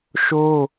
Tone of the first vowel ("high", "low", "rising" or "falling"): high